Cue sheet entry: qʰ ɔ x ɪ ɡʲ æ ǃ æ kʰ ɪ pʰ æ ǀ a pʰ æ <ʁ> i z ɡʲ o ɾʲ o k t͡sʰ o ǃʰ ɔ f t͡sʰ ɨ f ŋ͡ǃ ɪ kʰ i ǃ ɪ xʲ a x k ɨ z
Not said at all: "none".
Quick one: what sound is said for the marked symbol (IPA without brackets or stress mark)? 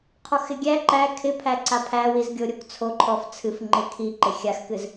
w